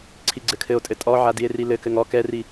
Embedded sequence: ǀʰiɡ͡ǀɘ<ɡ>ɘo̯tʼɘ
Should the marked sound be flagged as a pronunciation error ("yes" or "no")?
yes